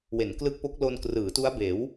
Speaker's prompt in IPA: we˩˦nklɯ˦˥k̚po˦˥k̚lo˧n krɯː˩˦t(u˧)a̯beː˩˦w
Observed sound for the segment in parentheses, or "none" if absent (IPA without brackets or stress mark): u˦˥